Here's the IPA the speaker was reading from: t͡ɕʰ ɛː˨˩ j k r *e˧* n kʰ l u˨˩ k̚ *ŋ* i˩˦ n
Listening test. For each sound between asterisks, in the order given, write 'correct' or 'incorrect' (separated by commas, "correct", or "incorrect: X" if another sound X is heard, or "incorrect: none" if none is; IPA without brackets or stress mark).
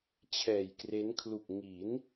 incorrect: e˦˥, correct